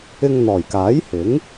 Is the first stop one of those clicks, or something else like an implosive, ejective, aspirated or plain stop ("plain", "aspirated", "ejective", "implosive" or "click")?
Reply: plain